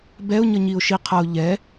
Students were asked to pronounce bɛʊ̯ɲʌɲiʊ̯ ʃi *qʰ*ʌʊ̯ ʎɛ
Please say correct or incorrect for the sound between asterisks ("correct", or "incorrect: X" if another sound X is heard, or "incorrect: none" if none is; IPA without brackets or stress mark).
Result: correct